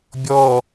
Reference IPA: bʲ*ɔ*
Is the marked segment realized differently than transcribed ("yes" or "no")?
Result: no